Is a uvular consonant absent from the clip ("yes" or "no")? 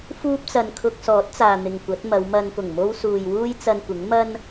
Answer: yes